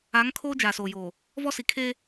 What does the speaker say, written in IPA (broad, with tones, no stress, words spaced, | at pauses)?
a˨˦ŋ kʰoː˦d͡ʒaː˨soː˨joː˨ | vɔ˦si˨ kʰe˦